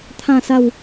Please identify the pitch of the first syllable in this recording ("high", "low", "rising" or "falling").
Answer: falling